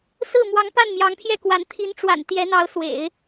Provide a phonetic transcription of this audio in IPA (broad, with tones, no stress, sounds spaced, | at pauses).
s ɹ̩˥˩ m w ɑ˧˥ ŋ p a˥˩ n m j ɑ˧˥ ŋ pʰ j ɛ˥˩ k w a˧˥ n t̪ʰ i˧˥ n ʈ͡ʂ w a̰˨˩ n t̪ j ɛ˧˥ n̪ ɑ˧˥ ʊ̯ s w ḛ˨˩˦ ɪ̯